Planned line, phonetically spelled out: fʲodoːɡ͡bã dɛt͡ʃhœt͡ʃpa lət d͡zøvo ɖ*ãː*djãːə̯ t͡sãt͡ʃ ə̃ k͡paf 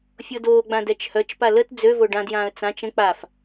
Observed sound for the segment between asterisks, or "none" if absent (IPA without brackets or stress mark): ã